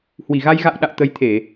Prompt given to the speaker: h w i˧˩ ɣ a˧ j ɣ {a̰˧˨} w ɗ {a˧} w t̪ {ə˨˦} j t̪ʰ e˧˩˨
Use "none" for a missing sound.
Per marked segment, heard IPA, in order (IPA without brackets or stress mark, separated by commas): a̰˧˨, a̰˧˨, ə˨˦